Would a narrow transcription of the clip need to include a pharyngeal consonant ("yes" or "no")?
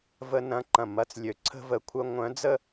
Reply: no